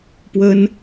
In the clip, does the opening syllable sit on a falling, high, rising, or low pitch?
high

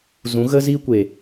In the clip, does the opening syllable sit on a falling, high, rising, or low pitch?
rising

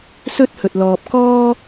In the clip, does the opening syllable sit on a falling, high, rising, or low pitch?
high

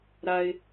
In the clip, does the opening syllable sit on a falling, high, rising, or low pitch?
high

